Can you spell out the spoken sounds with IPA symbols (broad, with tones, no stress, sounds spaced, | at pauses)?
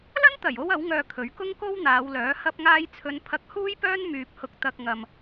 l ɐ˥ n t̪ ɐ˨˩ j o˥ w ɐ˨˥ w ŋ œː˨ kʰ ɵ˨˥ ɥ k ʊ˥ ŋ k o˥ w n̪ aː˨˧ w l œː˨˥ h ɐ˧ p̚ ŋ aː˧ j t͡sʰ ɵ˨˧ n pʰ ɐ˧ k̚ h uː˥ j p œː˥ n m yː˧ p̚ h ʊ˧ k̚ t̪ ɐ˧ k̚ ŋ ɐ˧ m